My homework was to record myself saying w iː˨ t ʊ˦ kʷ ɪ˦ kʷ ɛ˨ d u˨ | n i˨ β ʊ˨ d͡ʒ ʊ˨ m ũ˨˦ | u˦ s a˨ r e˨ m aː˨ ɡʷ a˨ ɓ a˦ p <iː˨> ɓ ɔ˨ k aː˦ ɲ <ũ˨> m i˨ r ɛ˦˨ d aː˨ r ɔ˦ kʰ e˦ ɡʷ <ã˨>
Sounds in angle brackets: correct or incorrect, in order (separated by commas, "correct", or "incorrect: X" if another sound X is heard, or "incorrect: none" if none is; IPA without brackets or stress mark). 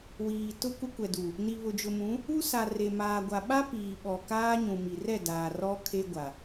correct, correct, incorrect: a˨